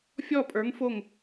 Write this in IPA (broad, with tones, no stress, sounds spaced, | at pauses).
fʲ ɔ˥˨ pʼ ə˞˨˥ ŋ f o˥˨ ŋ